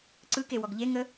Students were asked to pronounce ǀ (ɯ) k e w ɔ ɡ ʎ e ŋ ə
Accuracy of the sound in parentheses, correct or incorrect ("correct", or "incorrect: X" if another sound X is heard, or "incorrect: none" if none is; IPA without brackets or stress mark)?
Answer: correct